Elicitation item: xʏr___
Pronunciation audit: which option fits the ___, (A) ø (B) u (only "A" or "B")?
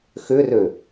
A